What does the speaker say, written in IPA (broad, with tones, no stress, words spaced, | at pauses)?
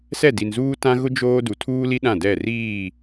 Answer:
sɛ˦˨di˨nzuː˦ tã˦ɣʊ˦ d͡ʒoː˦ du˨tʰuː˦li˦ ɗã˦˨dɛ˦˨riː˦˨